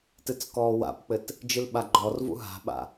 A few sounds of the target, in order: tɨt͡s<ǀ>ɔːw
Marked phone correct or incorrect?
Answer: incorrect: k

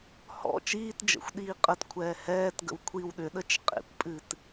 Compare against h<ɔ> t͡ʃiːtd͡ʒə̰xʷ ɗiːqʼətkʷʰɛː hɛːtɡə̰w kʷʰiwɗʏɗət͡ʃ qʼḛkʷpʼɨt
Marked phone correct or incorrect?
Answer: incorrect: ɔ̰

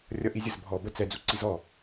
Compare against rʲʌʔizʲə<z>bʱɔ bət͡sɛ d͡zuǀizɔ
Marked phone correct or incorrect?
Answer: correct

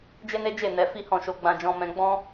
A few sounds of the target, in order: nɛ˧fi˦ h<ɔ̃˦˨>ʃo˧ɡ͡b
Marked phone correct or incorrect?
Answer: correct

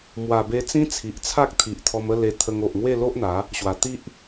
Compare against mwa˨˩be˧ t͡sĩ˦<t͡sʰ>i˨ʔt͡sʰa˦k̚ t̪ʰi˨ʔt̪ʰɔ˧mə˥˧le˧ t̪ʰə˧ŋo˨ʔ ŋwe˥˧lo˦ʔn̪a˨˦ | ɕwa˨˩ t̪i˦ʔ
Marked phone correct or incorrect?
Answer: correct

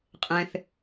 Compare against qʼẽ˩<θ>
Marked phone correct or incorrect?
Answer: correct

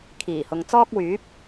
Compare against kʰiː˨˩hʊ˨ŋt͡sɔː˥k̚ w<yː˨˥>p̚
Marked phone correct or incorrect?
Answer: correct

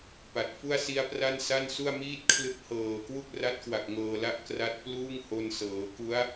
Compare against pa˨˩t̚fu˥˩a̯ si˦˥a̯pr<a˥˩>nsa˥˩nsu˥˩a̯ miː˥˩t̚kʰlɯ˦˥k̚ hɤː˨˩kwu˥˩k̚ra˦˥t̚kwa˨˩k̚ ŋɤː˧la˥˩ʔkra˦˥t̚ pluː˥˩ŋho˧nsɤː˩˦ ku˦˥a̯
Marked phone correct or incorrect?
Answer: correct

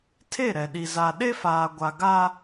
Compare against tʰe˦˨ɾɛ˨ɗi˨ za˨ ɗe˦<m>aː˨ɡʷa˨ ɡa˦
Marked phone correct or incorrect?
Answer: incorrect: f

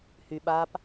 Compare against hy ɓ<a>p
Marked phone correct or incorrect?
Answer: correct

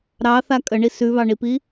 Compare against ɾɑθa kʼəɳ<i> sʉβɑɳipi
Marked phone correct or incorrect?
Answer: correct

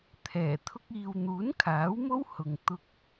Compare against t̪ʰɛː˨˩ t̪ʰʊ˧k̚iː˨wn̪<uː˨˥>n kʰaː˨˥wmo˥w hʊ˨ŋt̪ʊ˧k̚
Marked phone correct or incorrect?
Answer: correct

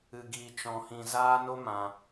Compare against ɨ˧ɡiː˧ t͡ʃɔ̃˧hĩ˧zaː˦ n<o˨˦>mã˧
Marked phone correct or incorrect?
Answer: incorrect: o˦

